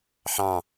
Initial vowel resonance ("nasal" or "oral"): nasal